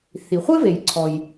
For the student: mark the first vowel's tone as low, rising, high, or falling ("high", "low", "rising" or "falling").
low